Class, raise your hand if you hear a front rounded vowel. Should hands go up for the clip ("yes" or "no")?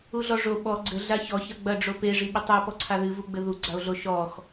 no